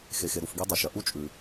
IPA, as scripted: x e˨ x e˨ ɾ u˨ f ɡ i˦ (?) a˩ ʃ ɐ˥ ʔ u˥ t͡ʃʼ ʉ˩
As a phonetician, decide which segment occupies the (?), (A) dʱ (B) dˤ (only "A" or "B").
B